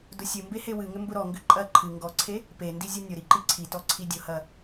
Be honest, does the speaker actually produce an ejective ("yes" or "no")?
yes